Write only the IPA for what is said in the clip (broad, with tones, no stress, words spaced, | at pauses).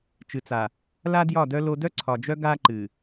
t͡ʃɨ˨t͡sa˨ | la˦djɒ˦˨dœ˦ lo˦ dœ˦ǀʰɒ˨d͡ʒœ˦ ɡa˦ǃɨ˨